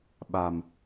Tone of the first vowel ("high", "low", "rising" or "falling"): low